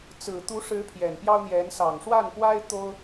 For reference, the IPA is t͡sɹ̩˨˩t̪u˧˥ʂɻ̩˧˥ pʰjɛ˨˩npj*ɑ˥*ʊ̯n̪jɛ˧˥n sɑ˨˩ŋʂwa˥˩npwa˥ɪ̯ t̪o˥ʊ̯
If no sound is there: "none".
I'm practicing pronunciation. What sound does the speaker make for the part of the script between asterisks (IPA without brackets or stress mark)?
ɑ˥